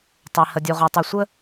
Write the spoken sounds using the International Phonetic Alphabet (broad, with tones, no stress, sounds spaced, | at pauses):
tˤ e˨ h ə˨ dʲ u˨ ʁ ɔ˨ tˤ u˨ sʷ ə˦